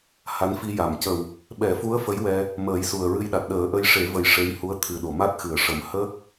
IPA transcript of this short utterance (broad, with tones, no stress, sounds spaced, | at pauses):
h a˧˥ n f i˧ j a˨˩˨ m c ə˨˩ w | ɓ ɛ˨˩˦ f u˧˥ ə̯ f ə˧˥ j w ɛ˧ | m əː˨˩˦ j s u˨˩ ə̯ ɹ ɨ˧ j ɗ a˨˩ t̚ ɗ əː˨˩˦ ʔ ə˧ j ʂ e˨˩˦ v ə˨˩ j ʂ e˧˥ j h u˧˥ ə̯ t̪ʰ ɨ˨˩ ɗ o˨˩˨ m a˦˥ t̚ x ɨ˨˩˨ ə̯ ʂ ə˨˩˦ m h ə˦˥ k̚